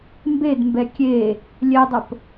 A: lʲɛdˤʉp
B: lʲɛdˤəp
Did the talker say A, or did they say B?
B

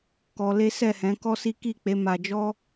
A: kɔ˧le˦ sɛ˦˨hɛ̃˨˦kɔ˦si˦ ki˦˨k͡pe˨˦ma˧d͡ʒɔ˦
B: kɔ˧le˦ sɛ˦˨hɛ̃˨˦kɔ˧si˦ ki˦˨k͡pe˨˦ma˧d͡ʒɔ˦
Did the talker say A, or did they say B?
A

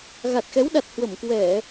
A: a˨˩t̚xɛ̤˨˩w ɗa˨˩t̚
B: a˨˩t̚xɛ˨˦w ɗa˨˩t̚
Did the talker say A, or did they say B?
B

